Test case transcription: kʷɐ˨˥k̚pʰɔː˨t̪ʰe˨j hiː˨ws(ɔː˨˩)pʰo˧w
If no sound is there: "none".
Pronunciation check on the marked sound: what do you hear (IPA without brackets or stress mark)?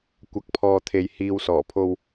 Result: ɔː˨˩